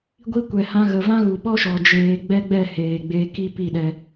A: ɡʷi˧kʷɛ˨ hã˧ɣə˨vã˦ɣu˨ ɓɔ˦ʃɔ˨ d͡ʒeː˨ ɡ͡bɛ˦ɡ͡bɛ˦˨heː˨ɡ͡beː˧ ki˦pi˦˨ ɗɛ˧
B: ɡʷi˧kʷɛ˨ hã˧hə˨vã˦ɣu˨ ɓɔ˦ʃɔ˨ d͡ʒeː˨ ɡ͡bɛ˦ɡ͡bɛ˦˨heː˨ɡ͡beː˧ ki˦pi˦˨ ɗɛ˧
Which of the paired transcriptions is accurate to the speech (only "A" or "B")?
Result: A